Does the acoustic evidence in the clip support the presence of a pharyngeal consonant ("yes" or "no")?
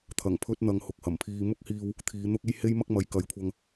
no